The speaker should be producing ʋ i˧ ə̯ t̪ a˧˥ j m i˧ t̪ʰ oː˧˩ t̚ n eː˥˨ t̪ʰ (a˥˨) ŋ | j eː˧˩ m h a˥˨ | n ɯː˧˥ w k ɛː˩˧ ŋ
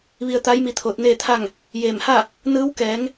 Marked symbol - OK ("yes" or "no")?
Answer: yes